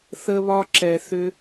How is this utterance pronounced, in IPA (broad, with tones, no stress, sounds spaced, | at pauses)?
θ ə˧ β ɒ˧ ǁ ɛ˨ θ ʏ˧